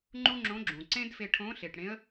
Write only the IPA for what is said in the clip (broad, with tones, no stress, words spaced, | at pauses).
ŋ͡ǃu˥ŋ͡ǁõ˧˥ɡ͡ǁũ˩ ǀẽ˥dfe˧ʈʰõ˧˥ ɬe˩ʈɽẽ˧˥ə̯